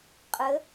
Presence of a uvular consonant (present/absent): present